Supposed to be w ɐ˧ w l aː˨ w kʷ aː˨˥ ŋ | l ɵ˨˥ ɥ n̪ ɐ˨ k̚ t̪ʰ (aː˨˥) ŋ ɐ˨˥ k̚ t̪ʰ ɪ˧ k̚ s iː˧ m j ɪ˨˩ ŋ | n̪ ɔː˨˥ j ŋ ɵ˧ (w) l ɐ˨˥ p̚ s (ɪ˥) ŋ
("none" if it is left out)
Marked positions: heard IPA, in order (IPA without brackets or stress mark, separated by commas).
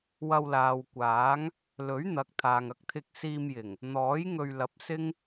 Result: aː˨, ɥ, ɪ˥